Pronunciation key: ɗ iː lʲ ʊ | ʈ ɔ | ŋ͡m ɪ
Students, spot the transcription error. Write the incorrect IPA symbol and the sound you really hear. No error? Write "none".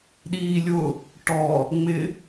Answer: none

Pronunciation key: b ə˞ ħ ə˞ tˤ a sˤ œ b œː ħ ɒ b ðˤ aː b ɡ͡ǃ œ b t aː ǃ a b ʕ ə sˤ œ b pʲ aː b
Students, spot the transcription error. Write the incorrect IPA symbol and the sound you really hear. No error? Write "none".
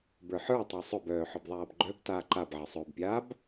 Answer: none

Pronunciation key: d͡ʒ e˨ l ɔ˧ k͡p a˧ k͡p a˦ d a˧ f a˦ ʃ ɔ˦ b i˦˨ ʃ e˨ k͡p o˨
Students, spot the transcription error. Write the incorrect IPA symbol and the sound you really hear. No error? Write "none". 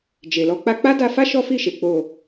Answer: b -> f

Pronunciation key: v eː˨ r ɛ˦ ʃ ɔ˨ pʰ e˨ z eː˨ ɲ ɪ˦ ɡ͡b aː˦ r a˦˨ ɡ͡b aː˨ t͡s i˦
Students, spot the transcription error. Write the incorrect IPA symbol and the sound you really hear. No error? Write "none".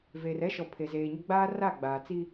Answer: none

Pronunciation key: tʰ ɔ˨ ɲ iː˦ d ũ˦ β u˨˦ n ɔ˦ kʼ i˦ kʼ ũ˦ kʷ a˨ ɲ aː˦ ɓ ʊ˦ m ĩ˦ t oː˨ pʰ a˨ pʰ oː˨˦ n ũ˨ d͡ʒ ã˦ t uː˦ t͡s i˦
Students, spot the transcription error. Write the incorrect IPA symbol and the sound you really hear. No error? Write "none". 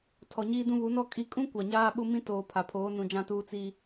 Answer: none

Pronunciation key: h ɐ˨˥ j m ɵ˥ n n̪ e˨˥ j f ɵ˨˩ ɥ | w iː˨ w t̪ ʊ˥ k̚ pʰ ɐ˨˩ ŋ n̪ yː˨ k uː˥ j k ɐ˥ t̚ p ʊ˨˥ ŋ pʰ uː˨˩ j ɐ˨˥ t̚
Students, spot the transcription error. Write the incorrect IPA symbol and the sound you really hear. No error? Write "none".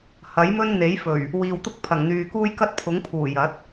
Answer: p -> pʰ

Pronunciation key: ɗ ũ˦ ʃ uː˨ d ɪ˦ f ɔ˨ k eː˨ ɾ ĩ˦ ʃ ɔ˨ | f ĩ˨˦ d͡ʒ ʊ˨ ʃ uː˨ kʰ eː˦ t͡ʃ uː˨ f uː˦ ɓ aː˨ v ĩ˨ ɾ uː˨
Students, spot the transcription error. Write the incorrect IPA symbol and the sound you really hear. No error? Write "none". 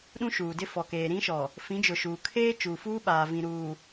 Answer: none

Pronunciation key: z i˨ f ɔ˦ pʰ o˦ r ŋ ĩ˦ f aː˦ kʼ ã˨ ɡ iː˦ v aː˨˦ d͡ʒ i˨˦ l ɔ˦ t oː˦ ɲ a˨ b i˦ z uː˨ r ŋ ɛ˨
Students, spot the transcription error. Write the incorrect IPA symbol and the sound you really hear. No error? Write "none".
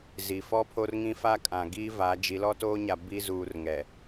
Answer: none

